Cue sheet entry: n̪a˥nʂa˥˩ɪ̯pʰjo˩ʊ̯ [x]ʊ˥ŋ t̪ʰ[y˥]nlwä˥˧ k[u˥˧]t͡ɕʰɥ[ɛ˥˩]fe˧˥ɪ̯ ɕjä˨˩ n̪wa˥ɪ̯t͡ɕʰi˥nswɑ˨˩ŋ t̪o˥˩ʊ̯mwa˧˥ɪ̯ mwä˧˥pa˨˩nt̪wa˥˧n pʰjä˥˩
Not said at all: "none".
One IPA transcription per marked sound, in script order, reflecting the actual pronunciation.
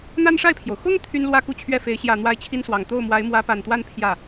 x, y˥, u˥˧, ɛ˥˩

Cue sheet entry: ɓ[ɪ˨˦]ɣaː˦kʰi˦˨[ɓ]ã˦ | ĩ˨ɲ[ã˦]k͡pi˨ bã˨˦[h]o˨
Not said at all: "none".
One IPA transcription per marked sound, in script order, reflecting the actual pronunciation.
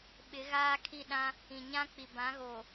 ɪ˨˦, ɗ, ã˦, ɣ

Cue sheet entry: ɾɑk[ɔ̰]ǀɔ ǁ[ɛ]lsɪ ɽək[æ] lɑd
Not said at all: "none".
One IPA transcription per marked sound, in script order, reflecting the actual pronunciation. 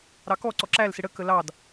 ɔ, æ, ə

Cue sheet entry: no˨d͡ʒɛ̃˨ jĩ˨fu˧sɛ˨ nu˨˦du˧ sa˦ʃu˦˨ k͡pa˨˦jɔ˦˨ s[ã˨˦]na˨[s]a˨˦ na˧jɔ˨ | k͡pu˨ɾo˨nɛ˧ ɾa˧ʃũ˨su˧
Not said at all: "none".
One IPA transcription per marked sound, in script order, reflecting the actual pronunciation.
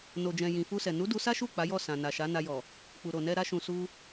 ã˨, ʃ

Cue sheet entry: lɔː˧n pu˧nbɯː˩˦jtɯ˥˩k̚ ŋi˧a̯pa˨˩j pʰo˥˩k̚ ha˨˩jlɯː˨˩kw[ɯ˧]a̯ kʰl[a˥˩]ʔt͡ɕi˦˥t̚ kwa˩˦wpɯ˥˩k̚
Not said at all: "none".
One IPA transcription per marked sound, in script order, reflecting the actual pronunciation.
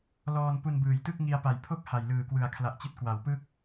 ɯ˨˩, a˨˩

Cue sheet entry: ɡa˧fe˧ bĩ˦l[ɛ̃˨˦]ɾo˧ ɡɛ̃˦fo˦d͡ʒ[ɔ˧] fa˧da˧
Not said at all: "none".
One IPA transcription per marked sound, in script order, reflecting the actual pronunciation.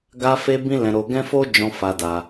ɛ̃˧, ɔ̃˧

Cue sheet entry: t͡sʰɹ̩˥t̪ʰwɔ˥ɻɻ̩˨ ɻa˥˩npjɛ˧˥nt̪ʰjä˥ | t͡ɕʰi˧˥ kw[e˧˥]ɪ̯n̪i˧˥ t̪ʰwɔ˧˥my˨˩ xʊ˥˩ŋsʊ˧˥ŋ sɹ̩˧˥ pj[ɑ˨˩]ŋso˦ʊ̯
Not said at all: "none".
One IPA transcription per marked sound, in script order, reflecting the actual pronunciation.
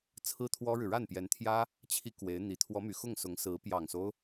e˧˥, ɑ˨˩

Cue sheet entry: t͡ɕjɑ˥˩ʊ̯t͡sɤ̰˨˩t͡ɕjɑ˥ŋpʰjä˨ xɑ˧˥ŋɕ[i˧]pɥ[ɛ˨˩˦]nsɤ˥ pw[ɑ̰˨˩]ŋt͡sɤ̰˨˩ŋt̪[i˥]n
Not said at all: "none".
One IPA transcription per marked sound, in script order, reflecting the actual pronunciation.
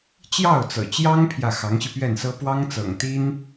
i˧, ɛ˥˩, ɑ˥, i˥

